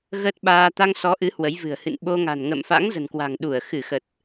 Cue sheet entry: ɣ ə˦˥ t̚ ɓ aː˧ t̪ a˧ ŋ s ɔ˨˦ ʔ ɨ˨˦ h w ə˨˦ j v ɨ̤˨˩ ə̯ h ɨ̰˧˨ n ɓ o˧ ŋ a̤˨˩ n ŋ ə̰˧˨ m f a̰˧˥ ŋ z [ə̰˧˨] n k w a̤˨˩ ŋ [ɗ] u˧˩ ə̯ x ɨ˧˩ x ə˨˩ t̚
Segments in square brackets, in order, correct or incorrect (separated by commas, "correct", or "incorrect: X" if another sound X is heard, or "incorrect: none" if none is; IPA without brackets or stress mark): incorrect: ə̤˨˩, correct